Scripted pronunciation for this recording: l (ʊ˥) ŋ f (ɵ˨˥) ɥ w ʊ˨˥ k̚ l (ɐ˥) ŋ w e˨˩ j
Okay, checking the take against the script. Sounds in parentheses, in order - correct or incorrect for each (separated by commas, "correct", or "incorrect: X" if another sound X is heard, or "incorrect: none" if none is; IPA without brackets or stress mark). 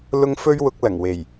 correct, incorrect: ɵ˥, incorrect: ɐ˨˩